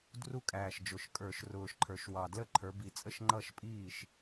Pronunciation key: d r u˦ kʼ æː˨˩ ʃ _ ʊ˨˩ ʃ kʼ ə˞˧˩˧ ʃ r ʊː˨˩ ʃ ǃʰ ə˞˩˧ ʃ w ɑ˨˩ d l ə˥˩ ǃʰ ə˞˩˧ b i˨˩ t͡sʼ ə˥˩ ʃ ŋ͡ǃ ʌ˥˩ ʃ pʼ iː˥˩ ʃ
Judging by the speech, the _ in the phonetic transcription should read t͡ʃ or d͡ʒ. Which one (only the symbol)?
d͡ʒ